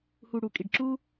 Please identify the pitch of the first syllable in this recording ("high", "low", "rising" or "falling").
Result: low